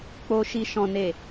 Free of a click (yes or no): yes